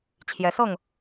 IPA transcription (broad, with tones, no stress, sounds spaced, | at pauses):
t͡ɕʰ j ɛ˨˦ s ɤ˥˨ ŋ